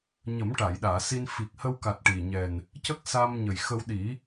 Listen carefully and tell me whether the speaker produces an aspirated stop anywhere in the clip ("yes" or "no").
no